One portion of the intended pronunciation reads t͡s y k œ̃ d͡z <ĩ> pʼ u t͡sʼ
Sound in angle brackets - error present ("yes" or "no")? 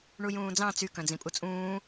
no